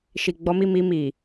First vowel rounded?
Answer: no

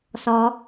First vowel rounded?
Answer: yes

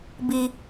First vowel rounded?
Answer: no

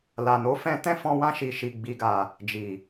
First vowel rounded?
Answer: no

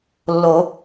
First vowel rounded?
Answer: yes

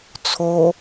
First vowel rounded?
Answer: yes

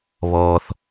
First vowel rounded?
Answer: yes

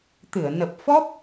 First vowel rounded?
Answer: no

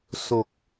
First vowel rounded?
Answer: yes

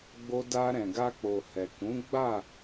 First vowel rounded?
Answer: yes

